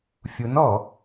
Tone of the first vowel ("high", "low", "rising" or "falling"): rising